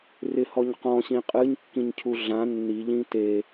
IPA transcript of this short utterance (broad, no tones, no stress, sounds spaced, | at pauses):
r ɪ h ɔ ɲ q ɔ̃ ɕ ĩ qʼ ɨ ɲ kː ĩ ɲ cʰ u ɮ ã nː i ʎ ĩ t e